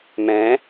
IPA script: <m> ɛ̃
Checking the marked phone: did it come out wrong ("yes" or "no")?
no